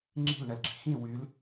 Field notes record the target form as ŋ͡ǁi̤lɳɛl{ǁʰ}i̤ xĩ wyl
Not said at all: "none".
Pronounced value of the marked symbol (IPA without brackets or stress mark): ɡ͡ǁ